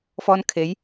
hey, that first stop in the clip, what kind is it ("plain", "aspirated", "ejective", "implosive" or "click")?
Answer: aspirated